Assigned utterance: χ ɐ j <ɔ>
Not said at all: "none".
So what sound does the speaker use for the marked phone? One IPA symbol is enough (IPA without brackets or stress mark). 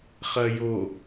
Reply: o